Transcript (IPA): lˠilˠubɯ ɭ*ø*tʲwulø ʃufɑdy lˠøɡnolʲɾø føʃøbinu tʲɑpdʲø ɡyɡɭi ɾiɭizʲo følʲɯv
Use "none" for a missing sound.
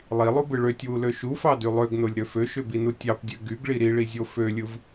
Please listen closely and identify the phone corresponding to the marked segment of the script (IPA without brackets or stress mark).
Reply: ø